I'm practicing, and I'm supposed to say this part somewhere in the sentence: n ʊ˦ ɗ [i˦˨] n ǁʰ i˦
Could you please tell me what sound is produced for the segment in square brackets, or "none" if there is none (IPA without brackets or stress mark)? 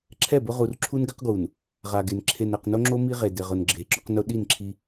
i˦˨